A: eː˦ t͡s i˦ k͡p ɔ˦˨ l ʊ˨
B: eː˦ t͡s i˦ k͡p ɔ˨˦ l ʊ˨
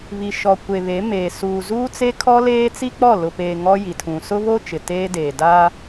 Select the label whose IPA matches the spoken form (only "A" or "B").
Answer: A